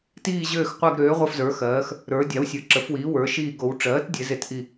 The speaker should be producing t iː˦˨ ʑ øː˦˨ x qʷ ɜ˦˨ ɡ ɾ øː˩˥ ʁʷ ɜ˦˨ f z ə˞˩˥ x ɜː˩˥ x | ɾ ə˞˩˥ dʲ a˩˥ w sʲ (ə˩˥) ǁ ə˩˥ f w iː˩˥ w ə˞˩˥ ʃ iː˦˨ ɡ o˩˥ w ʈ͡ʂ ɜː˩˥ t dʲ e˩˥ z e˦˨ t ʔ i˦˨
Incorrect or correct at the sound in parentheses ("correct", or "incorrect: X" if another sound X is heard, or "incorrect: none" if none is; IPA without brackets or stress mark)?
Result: incorrect: ə˞˩˥